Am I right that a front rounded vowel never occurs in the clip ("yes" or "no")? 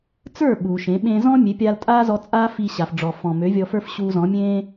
no